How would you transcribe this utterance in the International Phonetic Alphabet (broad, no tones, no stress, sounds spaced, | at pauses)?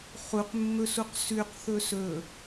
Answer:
χ u q mː ɵ s u q s ʉ q θ ɵ s ɵ